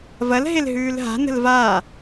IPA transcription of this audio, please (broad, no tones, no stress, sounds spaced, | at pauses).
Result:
v ɐ l ɦ e l ɦ ʉː l ɦ a̤ n ə̤ l v a